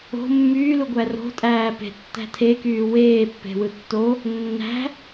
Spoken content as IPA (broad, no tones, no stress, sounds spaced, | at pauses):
o̤ mː yː l u ɡʷ æ r o̤ tʼ æː p e̤ tː æ̤ tʰ e k yː w eː pː e̤ w ɯ tː o | nː æ̤